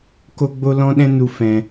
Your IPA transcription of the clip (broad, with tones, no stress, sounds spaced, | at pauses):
k o˦ ɡ͡b o˦ l ɔ̃˦ ɗ ɛ̃˦ n u˧ f ɛ̃˧